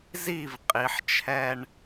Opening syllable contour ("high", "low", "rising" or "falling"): falling